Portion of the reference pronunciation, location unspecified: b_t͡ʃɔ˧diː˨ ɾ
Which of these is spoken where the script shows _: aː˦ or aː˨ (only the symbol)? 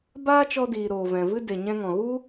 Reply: aː˦